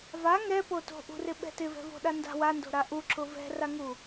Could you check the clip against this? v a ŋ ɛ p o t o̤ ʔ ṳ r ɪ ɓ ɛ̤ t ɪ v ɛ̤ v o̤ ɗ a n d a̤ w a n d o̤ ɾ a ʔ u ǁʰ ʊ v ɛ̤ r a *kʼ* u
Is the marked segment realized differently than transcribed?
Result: yes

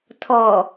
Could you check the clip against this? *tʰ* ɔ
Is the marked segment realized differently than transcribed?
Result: no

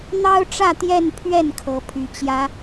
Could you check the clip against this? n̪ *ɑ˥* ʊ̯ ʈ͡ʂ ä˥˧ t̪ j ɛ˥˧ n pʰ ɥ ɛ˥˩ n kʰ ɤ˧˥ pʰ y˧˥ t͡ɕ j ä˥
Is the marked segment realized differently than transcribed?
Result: no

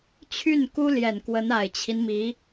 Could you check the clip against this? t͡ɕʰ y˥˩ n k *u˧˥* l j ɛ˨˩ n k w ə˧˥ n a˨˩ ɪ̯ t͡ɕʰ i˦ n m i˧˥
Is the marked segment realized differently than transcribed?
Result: yes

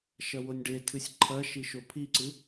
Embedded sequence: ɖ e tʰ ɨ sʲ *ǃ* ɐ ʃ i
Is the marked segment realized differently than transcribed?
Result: yes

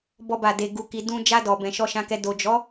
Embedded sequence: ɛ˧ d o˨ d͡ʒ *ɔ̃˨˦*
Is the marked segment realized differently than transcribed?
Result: yes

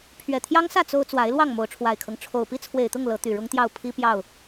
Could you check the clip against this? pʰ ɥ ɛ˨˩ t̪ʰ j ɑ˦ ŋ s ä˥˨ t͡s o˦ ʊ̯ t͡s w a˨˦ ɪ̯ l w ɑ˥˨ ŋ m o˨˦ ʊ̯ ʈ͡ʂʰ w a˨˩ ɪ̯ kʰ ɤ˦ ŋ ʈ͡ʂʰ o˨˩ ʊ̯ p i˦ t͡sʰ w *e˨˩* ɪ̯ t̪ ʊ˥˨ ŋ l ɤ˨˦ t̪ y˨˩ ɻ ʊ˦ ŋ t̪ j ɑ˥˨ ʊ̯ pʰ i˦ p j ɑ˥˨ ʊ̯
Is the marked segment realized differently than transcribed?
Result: no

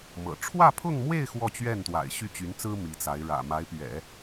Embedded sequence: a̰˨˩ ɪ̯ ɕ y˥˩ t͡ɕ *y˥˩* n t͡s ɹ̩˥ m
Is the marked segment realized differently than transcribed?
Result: yes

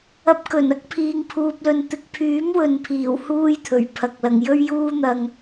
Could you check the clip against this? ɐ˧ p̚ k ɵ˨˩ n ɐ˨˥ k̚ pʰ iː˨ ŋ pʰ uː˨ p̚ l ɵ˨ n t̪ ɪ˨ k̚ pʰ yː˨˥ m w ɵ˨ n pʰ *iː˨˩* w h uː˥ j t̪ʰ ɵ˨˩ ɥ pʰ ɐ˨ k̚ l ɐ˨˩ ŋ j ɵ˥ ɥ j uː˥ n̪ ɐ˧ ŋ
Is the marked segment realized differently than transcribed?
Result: no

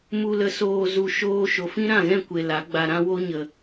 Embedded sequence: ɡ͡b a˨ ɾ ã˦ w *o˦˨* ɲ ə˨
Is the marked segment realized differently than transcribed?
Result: yes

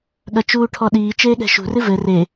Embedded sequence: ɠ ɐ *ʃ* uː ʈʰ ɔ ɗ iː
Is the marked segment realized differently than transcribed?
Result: yes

